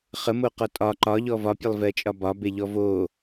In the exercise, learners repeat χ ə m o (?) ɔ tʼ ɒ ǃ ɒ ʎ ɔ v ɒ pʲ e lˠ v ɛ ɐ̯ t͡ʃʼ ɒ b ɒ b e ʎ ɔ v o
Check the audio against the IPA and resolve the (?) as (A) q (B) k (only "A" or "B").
A